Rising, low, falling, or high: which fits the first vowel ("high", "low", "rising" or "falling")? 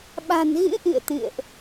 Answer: low